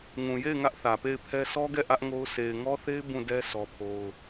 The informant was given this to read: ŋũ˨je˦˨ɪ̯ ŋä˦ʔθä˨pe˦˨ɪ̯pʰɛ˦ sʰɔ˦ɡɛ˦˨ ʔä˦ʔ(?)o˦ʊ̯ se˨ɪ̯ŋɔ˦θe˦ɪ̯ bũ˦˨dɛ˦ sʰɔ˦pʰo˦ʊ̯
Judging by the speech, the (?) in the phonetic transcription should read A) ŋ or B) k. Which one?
A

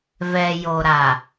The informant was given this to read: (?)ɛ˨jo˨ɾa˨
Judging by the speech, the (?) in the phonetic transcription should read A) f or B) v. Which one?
B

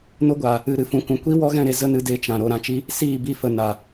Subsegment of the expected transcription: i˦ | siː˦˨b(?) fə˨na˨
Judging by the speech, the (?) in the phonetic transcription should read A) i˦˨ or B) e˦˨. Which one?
A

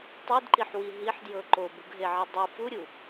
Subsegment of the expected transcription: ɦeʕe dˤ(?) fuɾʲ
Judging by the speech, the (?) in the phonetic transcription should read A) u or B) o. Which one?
A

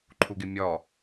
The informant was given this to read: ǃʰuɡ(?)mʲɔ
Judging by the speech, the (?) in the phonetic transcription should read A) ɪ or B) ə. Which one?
A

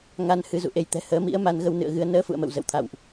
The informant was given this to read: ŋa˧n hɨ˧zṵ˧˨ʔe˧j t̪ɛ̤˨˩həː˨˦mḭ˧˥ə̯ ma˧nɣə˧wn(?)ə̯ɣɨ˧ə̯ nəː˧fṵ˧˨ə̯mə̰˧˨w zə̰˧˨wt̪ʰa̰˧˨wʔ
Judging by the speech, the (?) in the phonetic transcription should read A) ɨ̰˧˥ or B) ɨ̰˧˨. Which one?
B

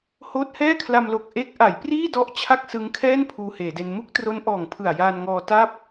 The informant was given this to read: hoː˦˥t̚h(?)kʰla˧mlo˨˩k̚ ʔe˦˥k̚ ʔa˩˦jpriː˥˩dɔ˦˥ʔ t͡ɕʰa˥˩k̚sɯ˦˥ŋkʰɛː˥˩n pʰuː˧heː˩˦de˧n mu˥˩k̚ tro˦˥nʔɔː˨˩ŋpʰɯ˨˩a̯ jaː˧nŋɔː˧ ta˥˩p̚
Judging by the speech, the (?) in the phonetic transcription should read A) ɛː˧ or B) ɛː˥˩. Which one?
B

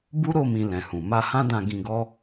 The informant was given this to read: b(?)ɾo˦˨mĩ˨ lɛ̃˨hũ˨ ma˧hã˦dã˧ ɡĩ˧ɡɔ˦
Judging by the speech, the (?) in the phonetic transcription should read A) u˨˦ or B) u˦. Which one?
B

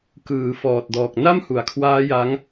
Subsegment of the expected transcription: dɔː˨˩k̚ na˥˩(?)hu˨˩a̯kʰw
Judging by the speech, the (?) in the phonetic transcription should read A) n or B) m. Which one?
B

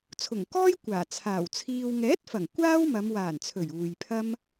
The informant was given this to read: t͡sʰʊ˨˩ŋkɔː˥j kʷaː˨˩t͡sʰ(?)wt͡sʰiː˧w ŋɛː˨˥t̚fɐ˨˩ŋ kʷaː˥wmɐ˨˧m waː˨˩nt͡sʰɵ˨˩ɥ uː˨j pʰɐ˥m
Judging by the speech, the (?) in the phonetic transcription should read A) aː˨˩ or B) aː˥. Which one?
A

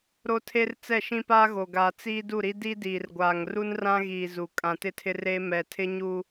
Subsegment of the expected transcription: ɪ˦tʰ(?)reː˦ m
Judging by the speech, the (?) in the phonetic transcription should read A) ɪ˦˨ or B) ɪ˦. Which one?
B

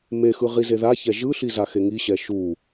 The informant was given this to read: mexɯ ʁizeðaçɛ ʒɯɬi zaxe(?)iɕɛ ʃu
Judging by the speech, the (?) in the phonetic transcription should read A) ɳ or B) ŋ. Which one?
B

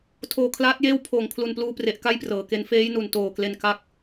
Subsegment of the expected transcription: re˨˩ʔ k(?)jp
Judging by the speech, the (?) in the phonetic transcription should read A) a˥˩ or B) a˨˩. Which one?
A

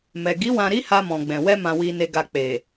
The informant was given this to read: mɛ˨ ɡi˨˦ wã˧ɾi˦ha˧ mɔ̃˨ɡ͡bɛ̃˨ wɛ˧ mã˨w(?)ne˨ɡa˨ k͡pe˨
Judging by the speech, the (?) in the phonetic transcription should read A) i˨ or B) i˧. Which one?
A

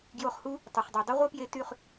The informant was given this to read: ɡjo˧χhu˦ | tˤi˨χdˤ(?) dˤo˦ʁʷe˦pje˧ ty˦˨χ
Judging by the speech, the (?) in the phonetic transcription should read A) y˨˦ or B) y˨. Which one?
B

